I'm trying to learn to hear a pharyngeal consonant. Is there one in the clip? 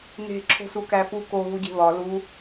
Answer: no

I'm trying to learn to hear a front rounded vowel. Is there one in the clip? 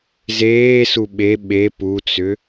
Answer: yes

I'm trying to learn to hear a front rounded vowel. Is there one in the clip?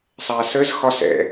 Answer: no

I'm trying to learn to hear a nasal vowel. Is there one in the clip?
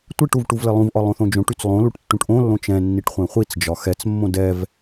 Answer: yes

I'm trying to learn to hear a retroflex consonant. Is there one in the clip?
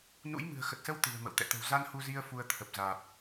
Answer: no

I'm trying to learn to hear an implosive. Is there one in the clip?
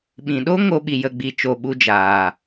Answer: yes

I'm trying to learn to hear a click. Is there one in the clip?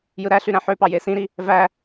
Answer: no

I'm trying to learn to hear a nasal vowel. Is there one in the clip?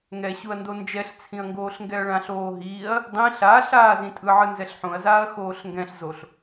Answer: yes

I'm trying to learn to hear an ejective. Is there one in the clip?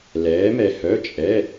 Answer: yes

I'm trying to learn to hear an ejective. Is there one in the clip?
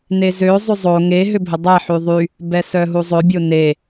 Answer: no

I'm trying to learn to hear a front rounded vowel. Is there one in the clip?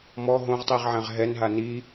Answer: no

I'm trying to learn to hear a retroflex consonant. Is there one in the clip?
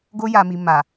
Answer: no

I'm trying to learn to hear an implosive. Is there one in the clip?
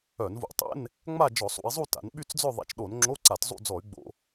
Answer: yes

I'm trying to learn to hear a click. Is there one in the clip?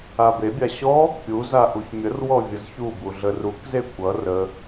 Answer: no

